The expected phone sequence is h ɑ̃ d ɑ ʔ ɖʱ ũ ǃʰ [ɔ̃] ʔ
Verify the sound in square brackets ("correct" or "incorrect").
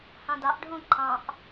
incorrect